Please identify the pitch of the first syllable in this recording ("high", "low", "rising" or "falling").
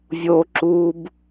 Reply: low